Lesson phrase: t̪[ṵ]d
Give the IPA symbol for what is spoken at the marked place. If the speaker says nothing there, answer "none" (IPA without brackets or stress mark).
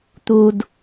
u